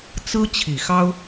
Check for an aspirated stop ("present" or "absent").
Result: present